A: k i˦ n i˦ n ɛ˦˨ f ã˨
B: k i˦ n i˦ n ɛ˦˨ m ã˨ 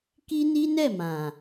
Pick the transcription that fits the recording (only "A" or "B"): B